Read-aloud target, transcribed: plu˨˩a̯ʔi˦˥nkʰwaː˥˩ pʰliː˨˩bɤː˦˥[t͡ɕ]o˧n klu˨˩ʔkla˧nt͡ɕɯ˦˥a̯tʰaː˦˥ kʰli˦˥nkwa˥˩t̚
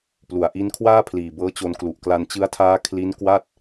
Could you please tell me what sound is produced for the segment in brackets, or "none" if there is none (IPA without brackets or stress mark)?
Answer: t͡ɕ